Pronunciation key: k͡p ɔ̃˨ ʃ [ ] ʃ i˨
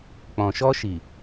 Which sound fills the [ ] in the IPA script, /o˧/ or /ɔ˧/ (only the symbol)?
ɔ˧